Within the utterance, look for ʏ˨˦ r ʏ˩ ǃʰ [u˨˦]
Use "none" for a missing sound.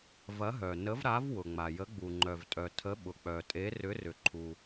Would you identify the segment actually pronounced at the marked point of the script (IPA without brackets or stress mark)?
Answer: u˩